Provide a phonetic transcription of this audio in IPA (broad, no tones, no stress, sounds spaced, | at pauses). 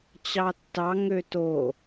t͡ɕ ɑ tː ɑ ŋ ø t o